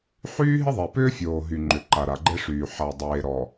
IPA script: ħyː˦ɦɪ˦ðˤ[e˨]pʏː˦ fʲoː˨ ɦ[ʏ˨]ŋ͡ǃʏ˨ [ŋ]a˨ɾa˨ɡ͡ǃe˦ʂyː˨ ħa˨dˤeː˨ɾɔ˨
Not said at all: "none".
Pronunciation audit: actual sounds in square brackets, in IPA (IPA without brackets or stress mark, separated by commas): e˨, y˨, ǃ